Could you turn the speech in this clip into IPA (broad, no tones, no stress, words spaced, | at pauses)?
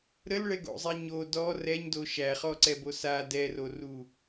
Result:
ɾəlɭɛɡo̰zˤɛ ɲo dɔ rɛɲdo ʃæχɔǀɛbo sa dɛroru